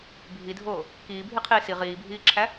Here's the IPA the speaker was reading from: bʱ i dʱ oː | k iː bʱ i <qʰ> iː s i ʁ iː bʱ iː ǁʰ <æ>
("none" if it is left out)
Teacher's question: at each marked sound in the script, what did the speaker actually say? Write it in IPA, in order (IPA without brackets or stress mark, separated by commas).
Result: qʰ, æ